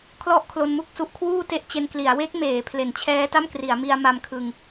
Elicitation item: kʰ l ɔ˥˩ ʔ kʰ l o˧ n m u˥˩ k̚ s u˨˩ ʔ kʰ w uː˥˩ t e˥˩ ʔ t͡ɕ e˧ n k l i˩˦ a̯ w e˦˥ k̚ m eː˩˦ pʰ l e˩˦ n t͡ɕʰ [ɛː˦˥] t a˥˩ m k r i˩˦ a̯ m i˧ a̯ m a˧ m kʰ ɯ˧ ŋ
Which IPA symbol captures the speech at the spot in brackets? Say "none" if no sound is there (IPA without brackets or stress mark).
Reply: ɛː˦˥